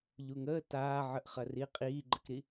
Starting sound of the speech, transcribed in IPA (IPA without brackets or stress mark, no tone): ʎ